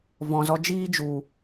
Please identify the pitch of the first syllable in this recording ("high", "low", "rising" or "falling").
low